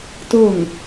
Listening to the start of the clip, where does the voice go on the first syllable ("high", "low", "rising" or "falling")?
falling